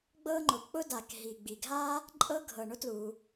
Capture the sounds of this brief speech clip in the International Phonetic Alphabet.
ɡ͡b ɤ˥ ŋ͡ǃ ʊ˩ k͡p ʊ˥ d a˩ k ɦ i˩ ɡ͡b i˩ ɡʱ a˥ | ǃʼ ɤ˥ ɡʱ ɤ˩ ɳ ʊ˥ t l u˩

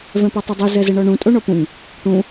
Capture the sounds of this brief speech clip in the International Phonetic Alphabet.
v ɛ̃ p ɔ tˤ ɘ dˤ u z ɛ z ɘ ɳ ɔ ɳ ũ tʼ o ɳ ɔ p ũ ŋ | ʈ ũ

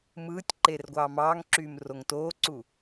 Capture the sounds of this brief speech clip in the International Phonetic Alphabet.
m ɯː tʲ ǃ eː r ɡʷ ɑː m ɑː ŋ ǁ yː m r o ŋ t oː ǀ u

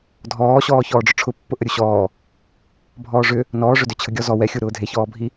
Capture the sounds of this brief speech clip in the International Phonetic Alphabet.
dʱ ɔː ɕ ɔː ç ɔː ɖ͡ʐ ʊ ʈ͡ʂʰ ʊ pː ʊ ʔ ə ɾʲ u ɕ ɔː | bʱ ɔː ʐ ʏ | n ɔː ʐ ʏ d ʏ t͡ɕʰ ə ɡʲ ɔ z ɔ w ɛ xʲ u ɾ ʊː dʱ e ç ɔː bʱ i

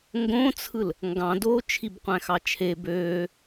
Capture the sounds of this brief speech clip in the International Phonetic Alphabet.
ŋ ɡ õ t͡sʰ ɯ l | ŋ ɡ ɑ̃ d oː t͡ʃʰ i b qʷ æ̃ x ɑ t͡ʃʰ e b øː

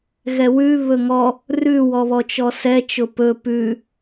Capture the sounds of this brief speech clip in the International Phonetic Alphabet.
ɣ ɛ w ʉ β ɵ ŋ ɔ | r ʉ w ɔ β ɔ t͡ʃ ɔ s ɛ t͡ʃ ʊ p ɵ p ʉ

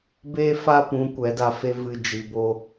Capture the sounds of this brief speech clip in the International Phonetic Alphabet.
b e˦ f a˦ p ũ˨˦ kʷ ɛ˨˦ d a˧ f e˦ v ɨ˧ d͡ʒ i˨ b o˧

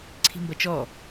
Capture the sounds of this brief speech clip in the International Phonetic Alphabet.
ǀʰ i̤ m b ɐ t͡ʃ ɔ

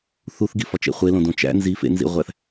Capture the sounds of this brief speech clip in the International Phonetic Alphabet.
θ u θ ɡ i f ɒ t͡ʃ ḛ χʷ e l õ d õ t͡ʃ æ̰ n z i f ḛ n z ḭ ʁʷ æ θ

